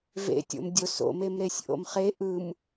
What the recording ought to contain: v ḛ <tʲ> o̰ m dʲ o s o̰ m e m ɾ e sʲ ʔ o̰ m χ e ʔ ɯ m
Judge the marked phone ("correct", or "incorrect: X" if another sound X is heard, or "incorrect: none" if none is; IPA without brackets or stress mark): correct